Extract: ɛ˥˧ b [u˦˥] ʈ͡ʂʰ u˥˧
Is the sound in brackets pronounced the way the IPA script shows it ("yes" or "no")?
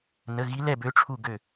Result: no